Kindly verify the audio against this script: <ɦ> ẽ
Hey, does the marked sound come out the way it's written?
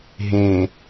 yes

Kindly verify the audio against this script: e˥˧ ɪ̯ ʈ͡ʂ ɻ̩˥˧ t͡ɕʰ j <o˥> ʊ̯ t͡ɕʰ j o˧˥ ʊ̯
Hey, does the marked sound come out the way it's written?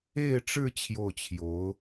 no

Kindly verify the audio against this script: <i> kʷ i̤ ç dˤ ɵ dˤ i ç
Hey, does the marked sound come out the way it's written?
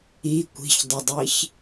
yes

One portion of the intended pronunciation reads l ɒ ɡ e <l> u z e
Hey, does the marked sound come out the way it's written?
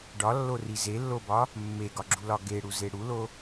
no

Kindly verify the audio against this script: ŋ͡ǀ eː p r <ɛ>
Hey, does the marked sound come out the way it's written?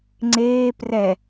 yes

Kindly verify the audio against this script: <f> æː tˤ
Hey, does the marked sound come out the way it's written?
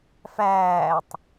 yes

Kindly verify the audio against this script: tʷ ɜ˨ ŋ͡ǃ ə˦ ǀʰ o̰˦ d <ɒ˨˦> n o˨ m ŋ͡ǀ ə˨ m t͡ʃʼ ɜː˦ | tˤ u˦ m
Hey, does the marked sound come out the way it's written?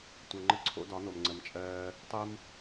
yes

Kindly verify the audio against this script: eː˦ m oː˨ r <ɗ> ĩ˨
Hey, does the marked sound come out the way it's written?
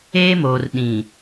yes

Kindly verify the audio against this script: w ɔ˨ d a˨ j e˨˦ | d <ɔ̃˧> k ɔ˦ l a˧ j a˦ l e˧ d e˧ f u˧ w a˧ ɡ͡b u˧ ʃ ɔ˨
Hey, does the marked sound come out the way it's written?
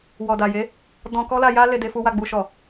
yes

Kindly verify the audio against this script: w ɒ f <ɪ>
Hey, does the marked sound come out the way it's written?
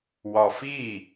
no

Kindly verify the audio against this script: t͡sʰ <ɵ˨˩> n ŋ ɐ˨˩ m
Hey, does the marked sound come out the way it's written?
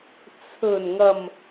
yes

